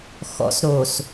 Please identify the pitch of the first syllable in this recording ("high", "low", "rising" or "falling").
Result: low